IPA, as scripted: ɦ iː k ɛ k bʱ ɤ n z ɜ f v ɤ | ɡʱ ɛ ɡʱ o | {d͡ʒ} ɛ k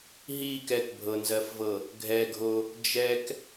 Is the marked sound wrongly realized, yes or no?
no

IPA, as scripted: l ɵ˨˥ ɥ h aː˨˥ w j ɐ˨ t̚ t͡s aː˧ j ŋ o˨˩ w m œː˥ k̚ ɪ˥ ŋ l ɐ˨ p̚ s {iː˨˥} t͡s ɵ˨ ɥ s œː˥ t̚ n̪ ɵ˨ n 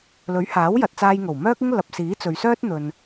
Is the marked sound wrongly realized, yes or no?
no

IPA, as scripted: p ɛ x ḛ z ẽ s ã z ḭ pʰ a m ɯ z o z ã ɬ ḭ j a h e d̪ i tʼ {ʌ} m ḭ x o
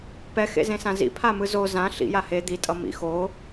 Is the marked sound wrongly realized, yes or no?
no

